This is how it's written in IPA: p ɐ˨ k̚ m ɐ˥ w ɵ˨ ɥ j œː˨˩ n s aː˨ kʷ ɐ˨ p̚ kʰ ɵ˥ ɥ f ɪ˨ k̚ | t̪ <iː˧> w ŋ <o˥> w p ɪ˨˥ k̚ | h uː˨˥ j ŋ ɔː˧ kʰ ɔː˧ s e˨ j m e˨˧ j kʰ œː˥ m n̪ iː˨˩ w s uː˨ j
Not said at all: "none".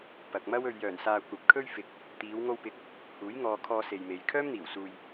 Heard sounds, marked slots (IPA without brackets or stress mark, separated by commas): iː˨˧, o˧